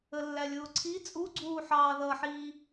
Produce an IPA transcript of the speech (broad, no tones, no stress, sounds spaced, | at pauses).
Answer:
ə lː æ lʲ ʊː ǀʰ i t͡sʼ u ɡ͡ǀ uː ħ ɑː ð ʌ ħ iː